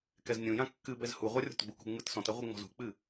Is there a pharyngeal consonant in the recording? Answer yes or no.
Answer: no